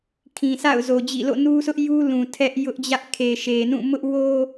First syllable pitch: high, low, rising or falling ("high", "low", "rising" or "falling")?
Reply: low